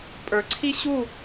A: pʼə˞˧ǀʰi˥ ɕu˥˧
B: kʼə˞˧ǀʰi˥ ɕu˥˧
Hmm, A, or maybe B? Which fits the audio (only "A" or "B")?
A